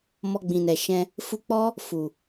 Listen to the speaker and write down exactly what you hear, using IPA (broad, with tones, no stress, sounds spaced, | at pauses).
m ɔ˧ ɡ͡b ĩ˨ n ɛ˨ ʃ ɛ̃˧ | f u˧ k͡p ɔ˦ | f u˨